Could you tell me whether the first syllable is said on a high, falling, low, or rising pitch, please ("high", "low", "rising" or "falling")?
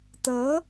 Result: rising